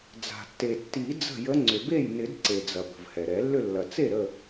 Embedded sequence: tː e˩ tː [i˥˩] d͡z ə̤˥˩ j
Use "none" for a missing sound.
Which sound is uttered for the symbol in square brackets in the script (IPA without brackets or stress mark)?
i˨˩˦